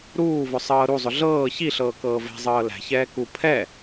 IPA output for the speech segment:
ɾ uː v ʊ sˤ ɤː ɾ u zˤ ʊ ɮ ɤː ç i ɬ ɤː k ɤː v ɛ̤ zˤ ɤː l æ̤ ç ɛː k u pʰ ɛ

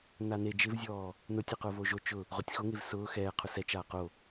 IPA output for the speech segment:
n a n e d͡ʒ ɪ v zʲ ɔː | n ʊ tʲ e q ʊː v o ʒ o t͡ʃ ʊ | ʁ ʊ tʲ x o ŋ e v s ʊː x ɛː qʰ ʊ s ɛ t͡ʃ aː q o

